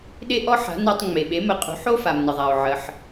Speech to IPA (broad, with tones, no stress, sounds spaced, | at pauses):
ɗ e˥ ʔ ɔ˥ ħ a̤˩˥ n a˧ tˤ ŋ͡m e˩ ɓ e˩˥ m ə˩˥ qʼ ṳ˩˥ ħ o˥ f a˩ m n ə˩ ðˤ a˩ o̯ ʕ ə˩ ħ